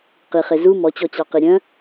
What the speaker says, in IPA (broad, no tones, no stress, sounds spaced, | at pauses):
q i χ e z u m ɔ t͡ɕ ɔ t͡ɕ ɑ q i ɾʲ œ̃